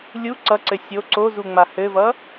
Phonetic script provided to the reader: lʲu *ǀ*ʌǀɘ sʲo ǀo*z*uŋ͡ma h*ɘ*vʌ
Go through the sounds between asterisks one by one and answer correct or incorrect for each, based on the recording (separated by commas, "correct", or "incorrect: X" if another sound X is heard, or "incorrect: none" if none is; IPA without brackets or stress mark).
correct, correct, correct